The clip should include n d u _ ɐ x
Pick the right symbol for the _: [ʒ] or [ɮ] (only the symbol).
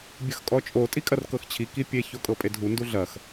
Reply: ɮ